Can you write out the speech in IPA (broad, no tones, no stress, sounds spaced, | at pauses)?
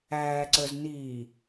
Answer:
æː ǀ ə˞ z n iː